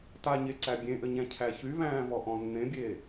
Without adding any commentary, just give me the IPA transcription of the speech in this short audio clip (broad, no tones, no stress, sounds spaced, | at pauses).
t a ɲ e ǀ æ bʲ ẽ ʔ ɘ ɲ æ̃ cʰ æ ç y β æ̃ː v ɔ ʔ ɔ̃ nː ẽ bʲ eː